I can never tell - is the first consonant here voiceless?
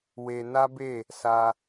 no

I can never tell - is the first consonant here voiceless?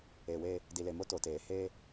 no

